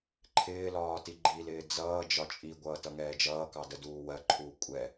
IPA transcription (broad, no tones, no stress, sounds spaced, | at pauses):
ǃʰ ɪː l ɒː t i ɡ͡ǃ i l ɪː d͡z ʌː d͡ʒ ɒ t͡ʃʼ i ɡʷ ʌː t ʌ ŋ ɛː d͡ʒ ʌː k ɑ d ə d uː w ɜ ǃʰ uː kʷʼ ɛ